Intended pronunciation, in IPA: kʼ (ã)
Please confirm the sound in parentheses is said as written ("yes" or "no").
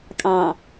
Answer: no